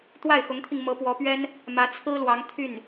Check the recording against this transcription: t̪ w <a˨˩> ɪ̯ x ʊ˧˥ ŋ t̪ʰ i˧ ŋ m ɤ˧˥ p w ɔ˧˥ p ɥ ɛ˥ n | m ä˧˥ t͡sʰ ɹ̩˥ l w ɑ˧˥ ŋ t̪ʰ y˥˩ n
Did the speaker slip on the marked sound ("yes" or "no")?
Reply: yes